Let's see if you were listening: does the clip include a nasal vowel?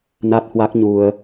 no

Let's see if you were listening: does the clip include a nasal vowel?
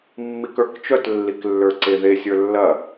no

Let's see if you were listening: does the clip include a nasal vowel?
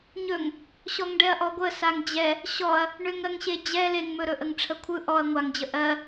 no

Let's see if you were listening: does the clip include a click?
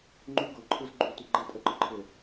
yes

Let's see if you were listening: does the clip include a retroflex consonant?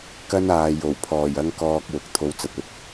no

